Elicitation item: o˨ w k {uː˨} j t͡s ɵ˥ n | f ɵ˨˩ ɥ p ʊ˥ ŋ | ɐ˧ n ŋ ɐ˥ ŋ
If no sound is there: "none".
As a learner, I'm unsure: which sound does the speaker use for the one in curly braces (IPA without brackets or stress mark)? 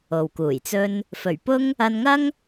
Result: uː˨˩